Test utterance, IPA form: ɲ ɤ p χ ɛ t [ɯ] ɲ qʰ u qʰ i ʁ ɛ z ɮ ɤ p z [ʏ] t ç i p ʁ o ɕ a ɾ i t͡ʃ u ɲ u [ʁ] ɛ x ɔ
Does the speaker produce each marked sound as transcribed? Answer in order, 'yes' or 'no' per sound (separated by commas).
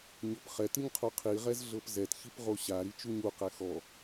yes, no, no